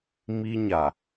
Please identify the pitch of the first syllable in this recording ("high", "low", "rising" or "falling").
high